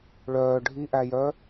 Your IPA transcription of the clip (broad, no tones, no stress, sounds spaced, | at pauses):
ɭ œː ɖʱ i ʔ æ j œ